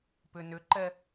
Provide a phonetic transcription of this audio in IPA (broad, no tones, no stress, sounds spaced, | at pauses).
p ʏ n ʏ ǃ ɛ